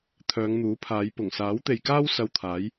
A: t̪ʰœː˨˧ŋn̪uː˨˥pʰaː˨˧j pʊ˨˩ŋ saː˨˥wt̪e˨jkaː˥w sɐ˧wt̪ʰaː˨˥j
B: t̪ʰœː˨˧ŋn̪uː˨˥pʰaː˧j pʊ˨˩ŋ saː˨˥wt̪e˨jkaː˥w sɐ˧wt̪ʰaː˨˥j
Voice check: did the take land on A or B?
A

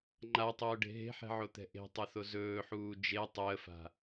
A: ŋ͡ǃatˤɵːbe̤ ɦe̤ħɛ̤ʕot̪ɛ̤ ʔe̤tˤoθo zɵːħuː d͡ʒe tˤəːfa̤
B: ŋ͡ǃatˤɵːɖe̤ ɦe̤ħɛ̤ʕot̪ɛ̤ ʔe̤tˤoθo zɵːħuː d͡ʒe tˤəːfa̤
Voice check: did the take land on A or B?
B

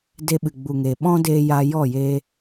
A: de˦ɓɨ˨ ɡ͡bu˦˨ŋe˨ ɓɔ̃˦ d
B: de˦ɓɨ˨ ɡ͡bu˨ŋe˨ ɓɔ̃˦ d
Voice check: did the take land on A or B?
B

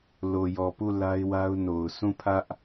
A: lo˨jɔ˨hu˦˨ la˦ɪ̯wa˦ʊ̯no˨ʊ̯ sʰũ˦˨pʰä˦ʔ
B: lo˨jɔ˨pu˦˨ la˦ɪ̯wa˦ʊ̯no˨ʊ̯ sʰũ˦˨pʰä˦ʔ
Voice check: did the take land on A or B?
B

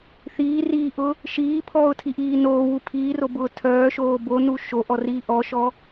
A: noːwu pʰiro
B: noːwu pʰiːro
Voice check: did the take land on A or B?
B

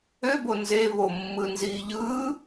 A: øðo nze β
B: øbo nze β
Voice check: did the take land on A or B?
B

